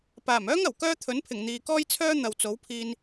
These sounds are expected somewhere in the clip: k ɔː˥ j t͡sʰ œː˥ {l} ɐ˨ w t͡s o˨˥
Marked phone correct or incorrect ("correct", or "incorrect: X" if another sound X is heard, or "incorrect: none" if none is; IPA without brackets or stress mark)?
incorrect: n̪